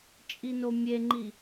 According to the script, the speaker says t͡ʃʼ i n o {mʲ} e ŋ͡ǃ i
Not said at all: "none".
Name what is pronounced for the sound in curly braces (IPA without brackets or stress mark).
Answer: mʲ